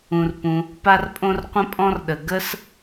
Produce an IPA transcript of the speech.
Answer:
ũ˩ r p ũ˩ | p a˥ r pʼ õ˥ r qʷ ə̃˥ pʼ ɔ̃˥ r ɗ ə˩ ɡ ə˥ s

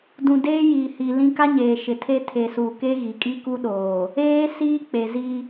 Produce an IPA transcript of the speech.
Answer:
d ũ˨ d eː˦ j iː˨ h i˨ l ĩ˦ k a˦ ɲ eː˨ ʃ ɪ˨ tʰ e˦ tʰ e˨ s uː˨ k e˦ ɣ i˨ kʼ i˦ k u˦ ɗ oː˨ | eː˦ s iː˦ k͡p e˨ z i˦

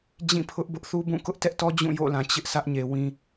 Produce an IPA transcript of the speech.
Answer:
d͡ʑ ĩ˦˨ pʰ ʊ˦ ʔ b ʊ˦ ʔ θ u˦ b ũ˦˨ k ʊ˦ ʔ t ɛ˦ ʔ t ɔ˦ d͡ʑ ũ˦˨ j o̰˦˨ l ã˨ t͡ɕ ɪ˦ ʔ sʰ ä˦ ʔ ɲ e˨ w ĩ˨

